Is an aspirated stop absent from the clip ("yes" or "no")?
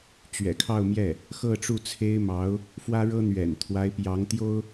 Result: no